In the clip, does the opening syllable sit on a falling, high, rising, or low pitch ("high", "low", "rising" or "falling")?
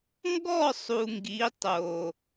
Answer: falling